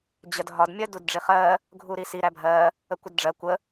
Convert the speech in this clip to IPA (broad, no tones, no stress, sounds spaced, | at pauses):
d͡ʑ ə d ɦ ɒ d mʲ ɜ d u d ɖ͡ʐ i χ ɜ | ɡʱ u ɾ i s i ɾ æ bʱ ɜ | ə kʷ ə d ɖ͡ʐ ɜ kʷ ə